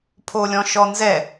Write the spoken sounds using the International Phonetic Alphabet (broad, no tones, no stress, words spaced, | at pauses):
pʰolʲɔ̃ʃɔnzɛ